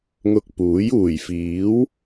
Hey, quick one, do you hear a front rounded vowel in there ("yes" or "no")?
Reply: no